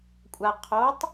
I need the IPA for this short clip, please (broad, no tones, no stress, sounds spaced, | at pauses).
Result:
kʷʼ a qʰ o tˤ